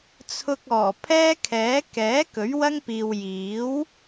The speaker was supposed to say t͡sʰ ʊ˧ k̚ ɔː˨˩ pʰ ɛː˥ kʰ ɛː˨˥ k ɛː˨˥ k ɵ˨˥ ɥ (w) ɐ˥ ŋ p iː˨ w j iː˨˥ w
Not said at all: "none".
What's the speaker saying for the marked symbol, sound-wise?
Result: w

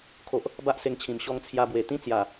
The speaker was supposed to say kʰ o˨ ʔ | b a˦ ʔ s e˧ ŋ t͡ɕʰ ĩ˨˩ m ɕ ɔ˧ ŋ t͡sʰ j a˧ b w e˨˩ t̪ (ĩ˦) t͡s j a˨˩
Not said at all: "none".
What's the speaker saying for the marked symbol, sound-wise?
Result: ĩ˦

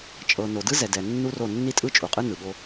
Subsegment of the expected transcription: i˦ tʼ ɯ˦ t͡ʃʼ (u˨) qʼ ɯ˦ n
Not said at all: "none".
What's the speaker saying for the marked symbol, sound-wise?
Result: u˨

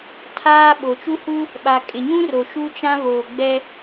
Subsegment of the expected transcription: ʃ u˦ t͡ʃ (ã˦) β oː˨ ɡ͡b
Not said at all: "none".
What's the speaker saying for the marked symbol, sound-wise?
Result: ã˦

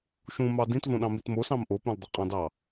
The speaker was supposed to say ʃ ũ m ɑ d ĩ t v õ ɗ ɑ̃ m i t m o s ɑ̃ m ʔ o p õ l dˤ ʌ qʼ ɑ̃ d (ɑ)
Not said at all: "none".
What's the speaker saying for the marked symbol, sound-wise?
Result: ɑ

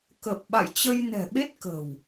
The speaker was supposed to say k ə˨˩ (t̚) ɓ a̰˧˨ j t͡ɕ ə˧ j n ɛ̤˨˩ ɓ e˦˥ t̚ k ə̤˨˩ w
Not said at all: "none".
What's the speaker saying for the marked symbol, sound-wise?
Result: p̚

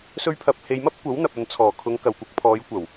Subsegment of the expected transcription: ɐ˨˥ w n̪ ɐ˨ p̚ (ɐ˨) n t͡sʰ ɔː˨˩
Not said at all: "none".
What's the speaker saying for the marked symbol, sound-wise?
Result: ɐ˨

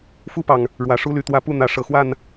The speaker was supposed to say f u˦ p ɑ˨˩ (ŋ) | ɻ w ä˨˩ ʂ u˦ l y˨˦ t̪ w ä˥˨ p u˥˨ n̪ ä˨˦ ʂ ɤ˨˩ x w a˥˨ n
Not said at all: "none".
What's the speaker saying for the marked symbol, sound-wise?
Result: ŋ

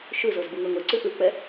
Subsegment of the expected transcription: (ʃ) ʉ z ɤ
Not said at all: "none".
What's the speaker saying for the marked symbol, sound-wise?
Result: ʃ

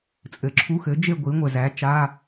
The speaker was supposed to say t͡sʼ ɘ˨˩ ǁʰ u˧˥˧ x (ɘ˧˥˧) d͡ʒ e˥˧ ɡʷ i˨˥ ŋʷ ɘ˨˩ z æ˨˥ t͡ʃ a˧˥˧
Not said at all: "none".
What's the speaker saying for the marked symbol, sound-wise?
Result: ɘ˨˥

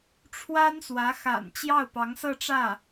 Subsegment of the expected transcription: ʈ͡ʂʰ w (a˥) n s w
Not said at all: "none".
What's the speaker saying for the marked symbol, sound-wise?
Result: a˥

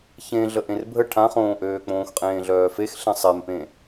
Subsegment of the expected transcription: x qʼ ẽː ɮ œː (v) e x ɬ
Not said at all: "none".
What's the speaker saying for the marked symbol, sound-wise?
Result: f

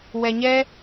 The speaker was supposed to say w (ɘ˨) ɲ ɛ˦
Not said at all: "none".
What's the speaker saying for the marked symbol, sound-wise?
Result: ɛ˨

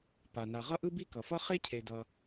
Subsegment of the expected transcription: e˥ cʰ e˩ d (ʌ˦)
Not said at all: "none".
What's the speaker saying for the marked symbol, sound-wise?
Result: ʌ˩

